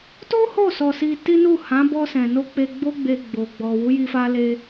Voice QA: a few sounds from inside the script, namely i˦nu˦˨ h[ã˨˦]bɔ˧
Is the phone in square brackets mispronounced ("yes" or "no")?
no